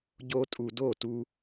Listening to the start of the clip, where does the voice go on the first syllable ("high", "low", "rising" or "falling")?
high